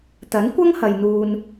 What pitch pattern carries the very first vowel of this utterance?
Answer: rising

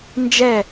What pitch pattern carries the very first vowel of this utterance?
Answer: falling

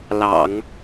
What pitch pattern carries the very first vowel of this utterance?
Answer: low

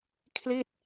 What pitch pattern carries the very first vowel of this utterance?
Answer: falling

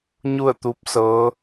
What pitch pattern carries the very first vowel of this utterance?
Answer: falling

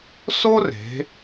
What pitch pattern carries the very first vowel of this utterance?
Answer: high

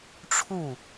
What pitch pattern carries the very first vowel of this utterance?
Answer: falling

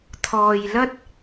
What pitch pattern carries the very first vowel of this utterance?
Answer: low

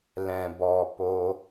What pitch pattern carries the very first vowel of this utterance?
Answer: low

